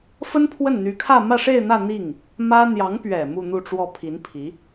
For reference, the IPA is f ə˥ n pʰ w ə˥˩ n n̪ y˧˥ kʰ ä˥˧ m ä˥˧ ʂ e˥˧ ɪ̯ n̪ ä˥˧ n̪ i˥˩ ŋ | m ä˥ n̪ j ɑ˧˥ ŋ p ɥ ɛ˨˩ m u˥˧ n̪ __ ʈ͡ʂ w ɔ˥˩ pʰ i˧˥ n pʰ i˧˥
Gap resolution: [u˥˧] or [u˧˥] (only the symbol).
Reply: u˥˧